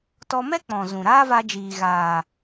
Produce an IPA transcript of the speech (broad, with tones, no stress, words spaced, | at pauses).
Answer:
tɔ˧mɛ˦ k͡pɔ̃˨zũ˨ɾaː˦va˧ d͡ʒiː˨ɣaː˨